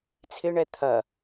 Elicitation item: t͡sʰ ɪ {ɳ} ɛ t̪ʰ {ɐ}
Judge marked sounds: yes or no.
yes, yes

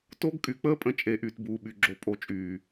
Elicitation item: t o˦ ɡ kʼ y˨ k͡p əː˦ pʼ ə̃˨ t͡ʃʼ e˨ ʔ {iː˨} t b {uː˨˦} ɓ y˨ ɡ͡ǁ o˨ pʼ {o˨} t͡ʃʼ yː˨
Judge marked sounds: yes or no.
no, no, yes

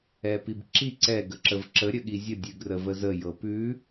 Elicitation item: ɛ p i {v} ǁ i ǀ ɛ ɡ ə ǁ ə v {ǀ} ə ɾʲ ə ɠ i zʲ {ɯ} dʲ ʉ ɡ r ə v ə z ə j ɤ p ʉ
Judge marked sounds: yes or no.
no, no, no

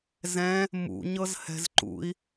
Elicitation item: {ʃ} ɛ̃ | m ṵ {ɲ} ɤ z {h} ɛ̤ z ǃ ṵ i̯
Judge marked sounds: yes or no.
no, yes, yes

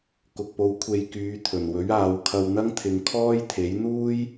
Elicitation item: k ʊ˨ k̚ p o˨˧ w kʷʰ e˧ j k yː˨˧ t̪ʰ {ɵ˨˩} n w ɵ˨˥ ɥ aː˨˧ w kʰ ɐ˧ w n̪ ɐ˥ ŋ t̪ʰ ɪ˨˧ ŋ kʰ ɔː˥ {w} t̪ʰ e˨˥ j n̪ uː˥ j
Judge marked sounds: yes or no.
yes, no

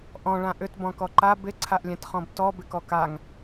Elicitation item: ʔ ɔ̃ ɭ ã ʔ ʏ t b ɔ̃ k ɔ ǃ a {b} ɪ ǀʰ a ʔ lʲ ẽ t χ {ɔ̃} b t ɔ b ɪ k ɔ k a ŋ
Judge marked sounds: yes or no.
yes, yes

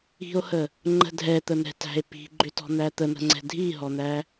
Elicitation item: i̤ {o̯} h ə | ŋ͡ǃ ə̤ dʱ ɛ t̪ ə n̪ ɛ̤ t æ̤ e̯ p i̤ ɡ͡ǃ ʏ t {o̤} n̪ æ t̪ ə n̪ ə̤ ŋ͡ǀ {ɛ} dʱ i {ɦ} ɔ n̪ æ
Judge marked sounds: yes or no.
yes, no, no, yes

